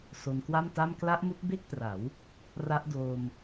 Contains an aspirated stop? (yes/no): no